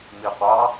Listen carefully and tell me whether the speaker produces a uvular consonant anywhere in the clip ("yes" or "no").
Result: yes